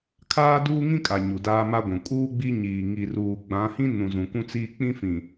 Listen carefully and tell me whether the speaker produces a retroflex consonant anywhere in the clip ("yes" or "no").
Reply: no